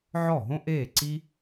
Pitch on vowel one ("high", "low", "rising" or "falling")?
falling